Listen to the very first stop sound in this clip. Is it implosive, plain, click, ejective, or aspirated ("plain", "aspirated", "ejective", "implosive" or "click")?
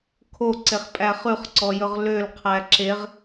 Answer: aspirated